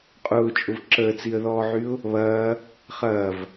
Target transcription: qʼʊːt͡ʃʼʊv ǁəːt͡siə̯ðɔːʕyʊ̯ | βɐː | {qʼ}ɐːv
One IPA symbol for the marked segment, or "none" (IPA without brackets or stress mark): χ